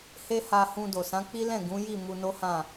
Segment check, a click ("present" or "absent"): absent